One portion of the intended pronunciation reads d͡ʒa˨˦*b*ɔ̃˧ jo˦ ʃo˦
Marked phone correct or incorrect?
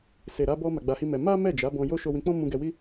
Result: correct